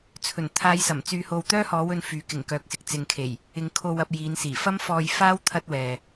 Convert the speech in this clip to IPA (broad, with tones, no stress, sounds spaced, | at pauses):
t͡sʰ ɵ˨˩ n t̪ʰ aː˨˧ j s ɐ˨˩ m t͡s yː˨ h o˨ w t̪ œː˥ h ɔː˨˧ w ɵ˧ n f yː˨˥ k ɪ˨˩ ŋ k œː˨ k̚ s ɪ˨ k̚ t͡s ɪ˨ ŋ kʰ e˨˩ j | ɪ˨˧ ŋ kʰ o˧ w ɐ˧ p̚ j iː˨˧ n s iː˨˩ f ɐ˥ m f ɔː˧ j f aː˥ w t̪ʰ ɐ˥ t̚ w ɛː˨